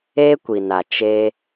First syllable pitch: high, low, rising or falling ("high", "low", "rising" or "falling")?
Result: high